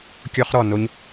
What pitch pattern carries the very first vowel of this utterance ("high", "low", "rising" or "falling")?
high